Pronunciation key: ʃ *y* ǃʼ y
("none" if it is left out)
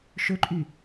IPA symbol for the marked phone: ø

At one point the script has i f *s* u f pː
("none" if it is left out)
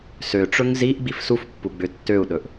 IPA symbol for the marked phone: s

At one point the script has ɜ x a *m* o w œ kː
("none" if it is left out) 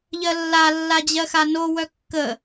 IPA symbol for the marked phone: n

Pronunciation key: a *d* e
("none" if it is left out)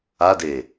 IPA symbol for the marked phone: d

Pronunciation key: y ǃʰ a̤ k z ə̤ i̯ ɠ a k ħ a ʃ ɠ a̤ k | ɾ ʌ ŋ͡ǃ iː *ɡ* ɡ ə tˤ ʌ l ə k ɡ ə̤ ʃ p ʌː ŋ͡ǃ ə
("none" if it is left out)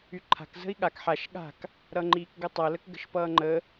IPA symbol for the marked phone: k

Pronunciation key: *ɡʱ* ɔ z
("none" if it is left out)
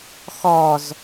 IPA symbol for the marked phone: x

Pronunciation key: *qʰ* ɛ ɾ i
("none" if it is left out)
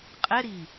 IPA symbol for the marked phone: qʼ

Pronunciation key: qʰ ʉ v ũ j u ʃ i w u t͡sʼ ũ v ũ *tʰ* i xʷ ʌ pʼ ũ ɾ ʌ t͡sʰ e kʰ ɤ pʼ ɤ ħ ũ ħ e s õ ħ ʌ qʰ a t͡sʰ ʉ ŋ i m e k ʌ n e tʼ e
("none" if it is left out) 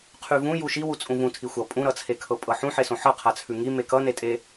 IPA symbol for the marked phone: tʰ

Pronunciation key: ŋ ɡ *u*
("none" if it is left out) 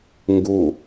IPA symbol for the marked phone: u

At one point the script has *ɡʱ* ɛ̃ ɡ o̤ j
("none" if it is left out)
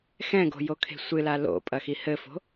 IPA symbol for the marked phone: x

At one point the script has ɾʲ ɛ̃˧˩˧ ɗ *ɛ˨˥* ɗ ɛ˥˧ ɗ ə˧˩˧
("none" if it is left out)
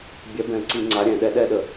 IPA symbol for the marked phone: ɛ˨˥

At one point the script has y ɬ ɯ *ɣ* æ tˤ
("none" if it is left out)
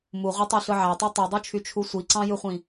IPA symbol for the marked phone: ʕ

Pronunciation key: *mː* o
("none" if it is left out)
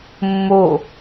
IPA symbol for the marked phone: mː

